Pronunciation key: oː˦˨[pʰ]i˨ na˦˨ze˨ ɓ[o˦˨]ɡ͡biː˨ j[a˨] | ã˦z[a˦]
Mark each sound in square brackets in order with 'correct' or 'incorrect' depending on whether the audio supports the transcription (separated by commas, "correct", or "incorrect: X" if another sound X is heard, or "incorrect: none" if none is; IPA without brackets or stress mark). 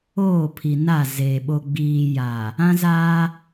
correct, incorrect: o˨, correct, incorrect: aː˦